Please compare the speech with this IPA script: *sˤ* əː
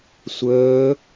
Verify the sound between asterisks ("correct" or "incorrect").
incorrect